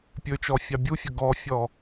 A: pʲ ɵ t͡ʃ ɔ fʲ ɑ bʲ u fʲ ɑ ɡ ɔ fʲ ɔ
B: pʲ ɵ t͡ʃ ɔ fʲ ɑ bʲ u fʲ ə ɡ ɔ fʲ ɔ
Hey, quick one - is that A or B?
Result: B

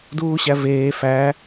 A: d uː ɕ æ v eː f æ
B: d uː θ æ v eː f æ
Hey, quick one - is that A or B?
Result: A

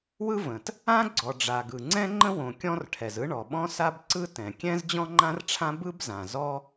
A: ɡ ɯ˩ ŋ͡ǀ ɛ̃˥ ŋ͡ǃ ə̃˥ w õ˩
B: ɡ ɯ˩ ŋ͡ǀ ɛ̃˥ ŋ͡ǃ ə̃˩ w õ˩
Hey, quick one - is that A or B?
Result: A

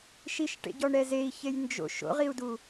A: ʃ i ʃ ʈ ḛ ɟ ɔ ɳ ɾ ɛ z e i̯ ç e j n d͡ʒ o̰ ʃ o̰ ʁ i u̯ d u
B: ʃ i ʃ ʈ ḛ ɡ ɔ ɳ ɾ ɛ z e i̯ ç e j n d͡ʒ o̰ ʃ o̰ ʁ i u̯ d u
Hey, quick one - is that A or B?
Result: A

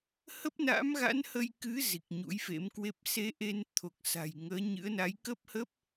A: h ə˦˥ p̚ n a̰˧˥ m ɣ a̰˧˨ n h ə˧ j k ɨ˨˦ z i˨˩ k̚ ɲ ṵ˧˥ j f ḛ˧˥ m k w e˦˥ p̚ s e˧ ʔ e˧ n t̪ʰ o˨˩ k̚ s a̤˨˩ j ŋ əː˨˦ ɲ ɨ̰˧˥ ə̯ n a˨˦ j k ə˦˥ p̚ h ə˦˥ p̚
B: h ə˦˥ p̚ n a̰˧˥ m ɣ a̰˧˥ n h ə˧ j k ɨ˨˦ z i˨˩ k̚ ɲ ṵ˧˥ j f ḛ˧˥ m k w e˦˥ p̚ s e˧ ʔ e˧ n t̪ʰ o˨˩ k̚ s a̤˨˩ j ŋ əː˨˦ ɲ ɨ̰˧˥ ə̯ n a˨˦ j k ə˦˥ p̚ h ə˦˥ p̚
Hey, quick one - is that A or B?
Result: B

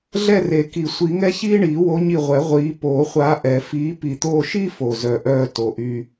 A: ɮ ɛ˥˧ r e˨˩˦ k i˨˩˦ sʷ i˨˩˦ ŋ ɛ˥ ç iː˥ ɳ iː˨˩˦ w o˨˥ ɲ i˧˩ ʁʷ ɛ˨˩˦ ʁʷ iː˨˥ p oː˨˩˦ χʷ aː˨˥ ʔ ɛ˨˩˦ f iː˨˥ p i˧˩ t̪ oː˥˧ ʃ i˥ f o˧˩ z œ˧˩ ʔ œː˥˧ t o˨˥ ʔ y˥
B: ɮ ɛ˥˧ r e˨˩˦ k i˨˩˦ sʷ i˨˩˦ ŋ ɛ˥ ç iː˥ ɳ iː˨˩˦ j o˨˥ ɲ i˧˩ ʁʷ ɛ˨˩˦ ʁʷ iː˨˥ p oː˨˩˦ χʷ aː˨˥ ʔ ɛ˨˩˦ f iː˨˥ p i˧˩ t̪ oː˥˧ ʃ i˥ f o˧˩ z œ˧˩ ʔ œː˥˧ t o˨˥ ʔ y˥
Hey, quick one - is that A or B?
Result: A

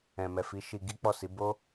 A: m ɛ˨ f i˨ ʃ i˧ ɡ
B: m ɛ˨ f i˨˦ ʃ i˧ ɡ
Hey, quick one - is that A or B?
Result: B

